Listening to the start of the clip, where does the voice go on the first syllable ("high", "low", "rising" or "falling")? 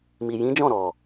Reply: low